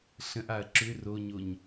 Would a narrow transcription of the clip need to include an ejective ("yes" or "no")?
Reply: no